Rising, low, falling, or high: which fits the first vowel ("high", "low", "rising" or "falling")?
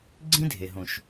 high